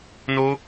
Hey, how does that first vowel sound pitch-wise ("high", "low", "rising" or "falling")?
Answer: high